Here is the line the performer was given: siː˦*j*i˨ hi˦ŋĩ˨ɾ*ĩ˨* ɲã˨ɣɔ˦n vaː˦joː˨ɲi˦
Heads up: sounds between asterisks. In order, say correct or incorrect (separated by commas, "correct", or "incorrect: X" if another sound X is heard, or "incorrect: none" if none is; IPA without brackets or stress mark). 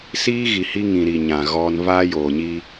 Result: incorrect: ɣ, incorrect: i˨